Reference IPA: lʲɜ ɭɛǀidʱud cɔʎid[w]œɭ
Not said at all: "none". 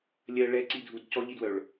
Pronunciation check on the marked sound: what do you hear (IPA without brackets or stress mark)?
w